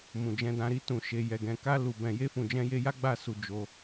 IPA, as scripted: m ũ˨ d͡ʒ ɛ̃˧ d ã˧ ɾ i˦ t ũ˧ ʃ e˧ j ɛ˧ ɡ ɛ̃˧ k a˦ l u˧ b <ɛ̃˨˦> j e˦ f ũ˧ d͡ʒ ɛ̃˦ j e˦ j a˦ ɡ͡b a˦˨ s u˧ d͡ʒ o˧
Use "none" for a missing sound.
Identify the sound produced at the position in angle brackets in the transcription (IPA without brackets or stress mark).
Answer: ɛ̃˧